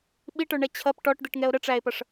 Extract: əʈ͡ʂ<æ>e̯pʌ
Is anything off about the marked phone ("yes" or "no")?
no